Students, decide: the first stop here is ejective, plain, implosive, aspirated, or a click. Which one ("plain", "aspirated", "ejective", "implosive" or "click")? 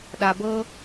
implosive